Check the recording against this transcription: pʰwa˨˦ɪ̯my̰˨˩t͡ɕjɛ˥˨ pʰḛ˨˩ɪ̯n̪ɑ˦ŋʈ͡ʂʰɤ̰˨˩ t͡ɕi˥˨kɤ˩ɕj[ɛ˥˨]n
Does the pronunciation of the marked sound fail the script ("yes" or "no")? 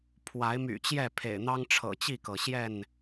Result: no